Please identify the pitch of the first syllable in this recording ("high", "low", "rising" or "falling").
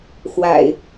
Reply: low